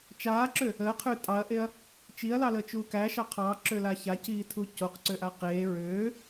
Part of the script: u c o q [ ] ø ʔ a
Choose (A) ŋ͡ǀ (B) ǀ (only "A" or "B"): B